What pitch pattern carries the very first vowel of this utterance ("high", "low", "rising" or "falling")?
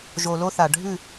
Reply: low